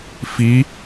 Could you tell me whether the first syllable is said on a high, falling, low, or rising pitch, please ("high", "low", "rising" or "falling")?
rising